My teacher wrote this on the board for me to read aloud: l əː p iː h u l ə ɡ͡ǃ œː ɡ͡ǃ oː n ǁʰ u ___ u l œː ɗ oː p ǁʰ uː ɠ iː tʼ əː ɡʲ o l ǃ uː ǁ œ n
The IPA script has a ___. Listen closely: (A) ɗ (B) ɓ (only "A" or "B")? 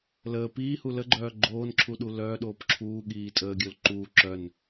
A